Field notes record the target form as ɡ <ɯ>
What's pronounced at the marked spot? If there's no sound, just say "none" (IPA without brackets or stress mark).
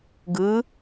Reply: ɯ